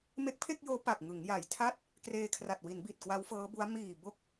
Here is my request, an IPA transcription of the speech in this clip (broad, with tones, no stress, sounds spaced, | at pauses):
m e˦˥ k̚ pʰ e˥˩ k̚ j oː˦˥ p a˨˩ k̚ ŋ ɯ˩˦ ŋ j a˨˩ j tʰ a˥˩ t̚ | k r eː˧ kʰ r a˨˩ t̚ w i˩˦ n b i˨˩ t̚ k w a˦˥ w f ɤː˦˥ b u˦˥ a̯ m iː˨˩ b o˦˥ k̚